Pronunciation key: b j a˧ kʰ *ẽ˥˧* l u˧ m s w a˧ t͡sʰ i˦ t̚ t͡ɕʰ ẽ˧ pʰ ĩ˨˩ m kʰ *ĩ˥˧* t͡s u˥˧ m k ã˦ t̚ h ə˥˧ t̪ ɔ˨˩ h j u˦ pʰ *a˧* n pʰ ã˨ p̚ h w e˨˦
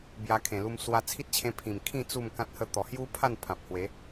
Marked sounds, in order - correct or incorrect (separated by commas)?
incorrect, correct, incorrect